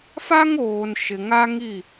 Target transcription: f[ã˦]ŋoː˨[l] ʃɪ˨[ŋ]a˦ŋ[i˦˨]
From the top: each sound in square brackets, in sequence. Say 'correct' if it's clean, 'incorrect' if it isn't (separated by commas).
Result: incorrect, incorrect, correct, correct